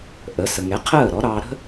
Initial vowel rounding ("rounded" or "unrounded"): unrounded